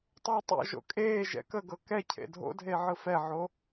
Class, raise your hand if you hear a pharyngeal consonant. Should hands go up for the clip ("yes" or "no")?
yes